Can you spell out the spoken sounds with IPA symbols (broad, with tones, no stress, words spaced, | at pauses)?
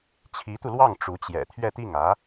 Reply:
t͡ɕʰi˧˥t̪u˧lwɑ˥˩ŋ ʈ͡ʂu˧˥t͡ɕjɛ̰˨˩ t̪ʰɥɛ˥˧t̪i˥˩ŋä˧˥